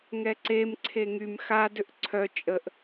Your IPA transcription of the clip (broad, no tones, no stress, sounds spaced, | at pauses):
ŋ ɛ ǀ e m ǀʰ e ŋ y m x a d ʏ ʔ ǀʰ œ t͡ʃʼ ə ʔ